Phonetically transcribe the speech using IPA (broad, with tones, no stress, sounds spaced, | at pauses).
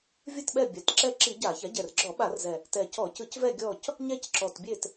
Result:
vʲ ɯ˦˨ t ɓ ɛ˦˨ bʲ a˩˥ t ǁ ɛ˦˨ ǁ i˧˩˧ ɟ a˧˩˧ ç a˩˥ ɟ ɛ˨˩ r ɡ͡ǁ ɔ˧˩˧ ɓ a˧˩˧ r z ɛ˨˩ | t ɛ˨˩ c ɔ˧˩˧ c ɯ˧˩˧ c v ɛ˦˨ ɡʲ ɔ˦˨ c | ɲ ɛ˦˨ c ǁ ɔ˨˩ t bʲ e˦˨ t